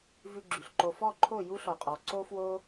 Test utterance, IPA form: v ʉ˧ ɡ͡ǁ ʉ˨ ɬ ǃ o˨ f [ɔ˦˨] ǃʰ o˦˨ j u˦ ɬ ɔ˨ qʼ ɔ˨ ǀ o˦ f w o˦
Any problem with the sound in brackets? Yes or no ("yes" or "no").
no